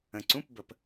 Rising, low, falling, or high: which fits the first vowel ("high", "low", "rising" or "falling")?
low